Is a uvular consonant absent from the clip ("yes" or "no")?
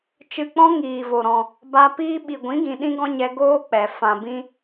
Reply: yes